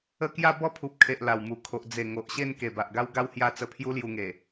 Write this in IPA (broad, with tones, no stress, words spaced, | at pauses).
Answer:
ə˥˧ kja˥˧bɔ˥˧pʰu˨p̚kʰe˨ʔ la˨˩wmu˨˩kʰo˨ʔ d͡ze˨˩ ŋo˨ʔɕe˥˧n ke˨˩ba˨ʔɡa˦wɡa˦w hja˦ t͡sə˧pʰju˦lju˧ŋe˨˩